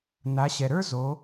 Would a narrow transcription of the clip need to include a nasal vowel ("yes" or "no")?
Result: no